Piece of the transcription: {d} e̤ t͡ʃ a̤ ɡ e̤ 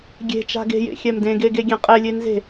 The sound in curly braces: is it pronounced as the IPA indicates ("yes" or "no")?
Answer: no